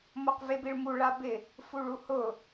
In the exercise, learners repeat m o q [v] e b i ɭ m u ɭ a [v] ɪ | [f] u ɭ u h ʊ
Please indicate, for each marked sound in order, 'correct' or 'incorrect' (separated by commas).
correct, incorrect, correct